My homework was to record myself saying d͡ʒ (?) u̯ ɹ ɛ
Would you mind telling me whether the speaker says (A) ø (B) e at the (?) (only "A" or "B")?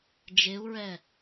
B